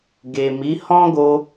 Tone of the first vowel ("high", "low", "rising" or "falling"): low